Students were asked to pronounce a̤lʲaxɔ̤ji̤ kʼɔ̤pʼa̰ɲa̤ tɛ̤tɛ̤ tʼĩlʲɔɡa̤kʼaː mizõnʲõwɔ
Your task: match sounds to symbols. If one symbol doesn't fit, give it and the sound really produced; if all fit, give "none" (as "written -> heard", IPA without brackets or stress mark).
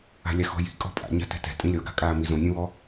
none